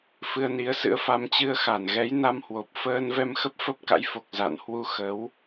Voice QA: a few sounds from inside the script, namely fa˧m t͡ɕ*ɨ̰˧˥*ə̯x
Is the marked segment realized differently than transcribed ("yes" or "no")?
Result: yes